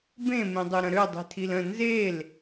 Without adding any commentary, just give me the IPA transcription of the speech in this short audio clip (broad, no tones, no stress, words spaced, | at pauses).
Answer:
bẽ mẽdˤøɾə̃ɾø dˤi̤tʰilə̃ nzel